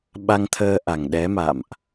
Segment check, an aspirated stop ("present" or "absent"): present